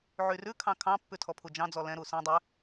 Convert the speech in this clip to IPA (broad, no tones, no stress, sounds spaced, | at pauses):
ʕ y r ʉ kʰ ɑ̃ kʰ ɑ̃ pː ʉ tʰ ɔ pʰ u d͡ʒ ɑ̃ d͡z ɔ l ɛ̃ ɾ u s ɛ̃ dˤ ɛ